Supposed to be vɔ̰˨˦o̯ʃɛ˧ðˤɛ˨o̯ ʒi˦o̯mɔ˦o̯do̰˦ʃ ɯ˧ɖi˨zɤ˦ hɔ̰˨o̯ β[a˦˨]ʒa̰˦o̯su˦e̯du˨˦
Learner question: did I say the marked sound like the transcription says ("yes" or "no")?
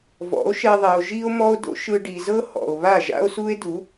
yes